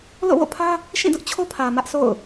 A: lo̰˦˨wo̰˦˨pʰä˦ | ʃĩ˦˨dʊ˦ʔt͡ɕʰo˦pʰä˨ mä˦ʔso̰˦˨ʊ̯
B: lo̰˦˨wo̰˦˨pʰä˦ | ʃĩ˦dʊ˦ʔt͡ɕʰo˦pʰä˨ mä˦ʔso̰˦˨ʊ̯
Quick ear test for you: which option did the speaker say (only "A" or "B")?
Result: A